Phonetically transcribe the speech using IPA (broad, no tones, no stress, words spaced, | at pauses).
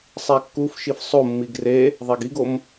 sˤækːuf ʃifsˤo mːiɡre | ðˤæɡiɡom